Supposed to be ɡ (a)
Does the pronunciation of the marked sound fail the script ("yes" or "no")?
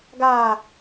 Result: yes